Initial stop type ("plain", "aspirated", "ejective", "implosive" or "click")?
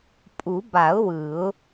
ejective